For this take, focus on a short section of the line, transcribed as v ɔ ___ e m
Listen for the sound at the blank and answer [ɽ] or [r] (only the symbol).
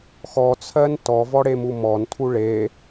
ɽ